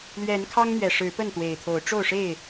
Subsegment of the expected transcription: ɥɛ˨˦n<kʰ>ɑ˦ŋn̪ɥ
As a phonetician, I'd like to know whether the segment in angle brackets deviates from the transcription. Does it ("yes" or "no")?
no